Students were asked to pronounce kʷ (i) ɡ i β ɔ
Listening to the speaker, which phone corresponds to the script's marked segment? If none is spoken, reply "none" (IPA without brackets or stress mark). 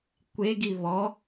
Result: e